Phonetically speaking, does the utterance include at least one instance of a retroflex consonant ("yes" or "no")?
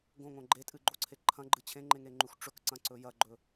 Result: yes